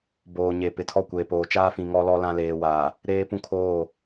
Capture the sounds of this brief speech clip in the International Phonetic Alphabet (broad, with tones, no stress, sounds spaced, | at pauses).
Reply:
b oː˨ ɲ e˨ p ɪ˨ tʰ ɔ˦˨ kʷ eː˨ p oː˨ t͡ʃ aː˦ f ĩ˨ ŋ ɔ˦ l ɔ˦ l ã˦ l eː˨ w aː˨ | ɾ eː˦ p ũ˦ kʰ oː˦˨